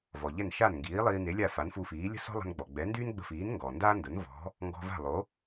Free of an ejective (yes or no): yes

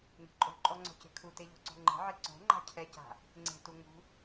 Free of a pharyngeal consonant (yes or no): no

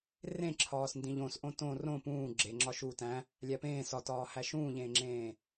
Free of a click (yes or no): no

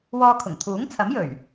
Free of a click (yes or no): yes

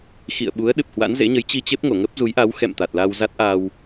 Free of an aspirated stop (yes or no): yes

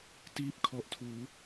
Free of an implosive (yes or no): yes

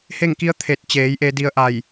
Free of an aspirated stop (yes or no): no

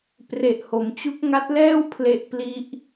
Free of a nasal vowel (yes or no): yes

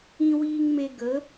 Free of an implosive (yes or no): yes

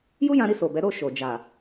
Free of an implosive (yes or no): yes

